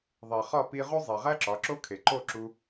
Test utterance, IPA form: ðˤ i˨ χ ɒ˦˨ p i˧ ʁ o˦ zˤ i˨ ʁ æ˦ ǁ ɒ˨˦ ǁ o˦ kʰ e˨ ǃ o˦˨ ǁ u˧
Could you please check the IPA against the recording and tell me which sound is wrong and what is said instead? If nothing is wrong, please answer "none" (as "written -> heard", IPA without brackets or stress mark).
none